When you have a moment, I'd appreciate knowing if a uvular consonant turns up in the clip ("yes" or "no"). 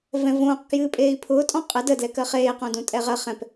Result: yes